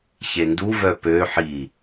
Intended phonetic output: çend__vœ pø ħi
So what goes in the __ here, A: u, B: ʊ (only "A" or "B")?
A